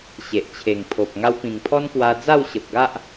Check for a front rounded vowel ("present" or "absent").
absent